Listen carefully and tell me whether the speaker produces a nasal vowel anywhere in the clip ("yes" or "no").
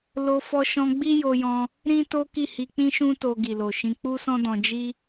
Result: yes